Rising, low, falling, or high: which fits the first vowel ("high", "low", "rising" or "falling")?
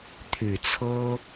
low